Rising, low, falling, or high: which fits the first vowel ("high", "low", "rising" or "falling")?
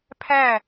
falling